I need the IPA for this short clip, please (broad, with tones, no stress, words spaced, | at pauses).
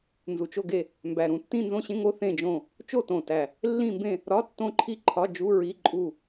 nzu˨˩t͡ʃo˦˨ɡe˦˨ | mbæ˨˩ɾũ˨˩ tːĩ˦˨nzõ˦˨ɕẽ˧˥˧ ŋo˧˥˧θẽ˦˨ d͡ʒõ˦˨ | t͡ʃo˦˨tõ˨˩tæ˨˩ | lːĩ˦˨mbẽ˦˨ | ɾɒ˧˥˧tːõ˦˨ǃʰi˦˨ ǃʰɒ˧˥˧d͡ʒu˧˥˧ɹi˧˥˧ǃʼu˦˨